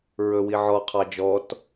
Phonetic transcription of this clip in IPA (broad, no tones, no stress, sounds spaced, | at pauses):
ɹ ɵ w i ʕ ɔ qʰ ɑ d͡ʒ ɔ t